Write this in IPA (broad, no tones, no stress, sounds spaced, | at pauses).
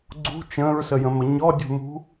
ɡ͡ǀ ṳ t͡ʃ ə̃ː ɹ s ə j ə̃ m ə ɲ ɔ dʲ ṳ m ṳ